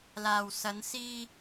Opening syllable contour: low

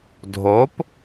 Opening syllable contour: rising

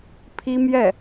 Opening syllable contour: high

